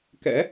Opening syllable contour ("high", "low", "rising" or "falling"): rising